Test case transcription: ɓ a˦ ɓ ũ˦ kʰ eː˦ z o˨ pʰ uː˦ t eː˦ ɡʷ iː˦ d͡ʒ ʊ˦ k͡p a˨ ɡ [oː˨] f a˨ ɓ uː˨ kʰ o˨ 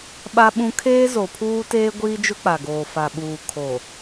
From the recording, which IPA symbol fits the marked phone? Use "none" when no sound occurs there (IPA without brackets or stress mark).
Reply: oː˨